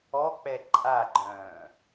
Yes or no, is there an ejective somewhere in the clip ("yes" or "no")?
yes